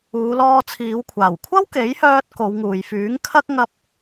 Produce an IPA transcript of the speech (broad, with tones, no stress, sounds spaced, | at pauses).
uː˨˧ l ɔː˧ t͡sʰ iː˨˧ w kʷʰ aː˨˩ w kʷʰ ɐ˥ w k e˨˥ j h œː˧ t̚ k o˨˧ w ŋ uː˨ j f yː˨˥ ŋ kʰ ɐ˥ k̚ ŋ ɐ˧ p̚